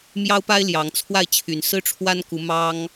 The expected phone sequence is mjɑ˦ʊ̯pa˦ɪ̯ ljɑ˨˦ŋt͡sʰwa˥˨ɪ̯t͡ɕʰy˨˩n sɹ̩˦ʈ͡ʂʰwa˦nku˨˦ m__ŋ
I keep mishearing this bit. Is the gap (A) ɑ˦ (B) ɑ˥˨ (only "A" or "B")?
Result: A